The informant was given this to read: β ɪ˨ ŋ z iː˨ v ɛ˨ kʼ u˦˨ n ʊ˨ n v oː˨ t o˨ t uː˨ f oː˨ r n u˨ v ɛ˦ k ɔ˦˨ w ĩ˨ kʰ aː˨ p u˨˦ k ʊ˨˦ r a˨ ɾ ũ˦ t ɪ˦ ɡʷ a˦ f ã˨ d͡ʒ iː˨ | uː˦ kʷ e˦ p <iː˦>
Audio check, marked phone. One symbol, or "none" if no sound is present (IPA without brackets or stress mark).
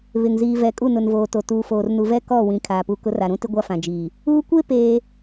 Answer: eː˦